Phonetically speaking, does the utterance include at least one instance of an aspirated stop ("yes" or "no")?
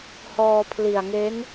yes